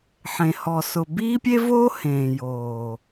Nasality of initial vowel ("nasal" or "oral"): nasal